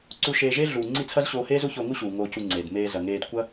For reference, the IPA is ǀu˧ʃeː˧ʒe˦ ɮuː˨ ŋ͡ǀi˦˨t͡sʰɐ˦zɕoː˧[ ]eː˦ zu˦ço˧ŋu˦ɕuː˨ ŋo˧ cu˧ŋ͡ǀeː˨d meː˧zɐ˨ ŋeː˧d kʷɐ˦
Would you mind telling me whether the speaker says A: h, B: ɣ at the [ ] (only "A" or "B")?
A